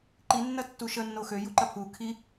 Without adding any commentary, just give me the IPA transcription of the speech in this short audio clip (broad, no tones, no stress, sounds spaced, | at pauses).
ǃ i nː ɐ tː u ʃ ə nː o x ø j u ǃ ɐ pʰ u kʰ i